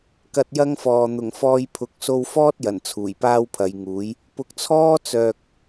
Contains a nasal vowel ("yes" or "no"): no